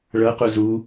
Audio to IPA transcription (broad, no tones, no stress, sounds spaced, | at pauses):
ɭ ɤ q u z u